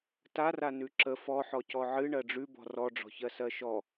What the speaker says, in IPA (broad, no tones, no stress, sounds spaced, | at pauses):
t a r a n ʉ ǁ ə f ɔ ħ ɔ c ɔ ʕ ɨ ɳ ɜ ɖ͡ʐ ʉ b ɔ̤ r ɔ ɖ͡ʐ ɔ̤ ç ɜ s ɜ ʃ ɔ